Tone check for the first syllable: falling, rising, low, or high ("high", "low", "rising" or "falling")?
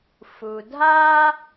low